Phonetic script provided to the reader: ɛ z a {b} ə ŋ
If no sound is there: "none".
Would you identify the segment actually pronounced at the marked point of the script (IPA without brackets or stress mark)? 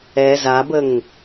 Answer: b